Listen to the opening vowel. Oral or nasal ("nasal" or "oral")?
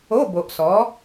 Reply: oral